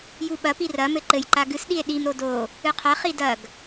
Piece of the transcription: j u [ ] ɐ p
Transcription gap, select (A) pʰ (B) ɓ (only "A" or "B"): B